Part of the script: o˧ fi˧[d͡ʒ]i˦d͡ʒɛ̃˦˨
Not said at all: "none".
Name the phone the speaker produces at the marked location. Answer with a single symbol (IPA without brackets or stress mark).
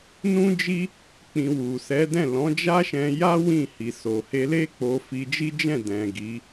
d͡ʒ